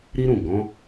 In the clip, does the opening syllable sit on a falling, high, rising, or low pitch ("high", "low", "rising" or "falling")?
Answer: high